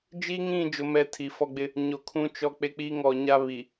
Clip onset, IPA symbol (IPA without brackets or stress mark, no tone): d͡ʒ